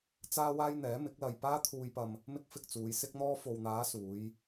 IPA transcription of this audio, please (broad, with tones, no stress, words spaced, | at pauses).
t͡saː˥waː˥jn̪ɛː˨˥ mɪ˨˥k̚lɐ˧j paː˥t̪ʰuː˧jpɐ˧m | mɪ˥k̚fɪ˧k̚t͡suː˨˧j sɪ˥k̚n̪ɔː˥ fo˨wn̪aː˨˧ suː˨˧j